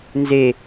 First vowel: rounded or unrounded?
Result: unrounded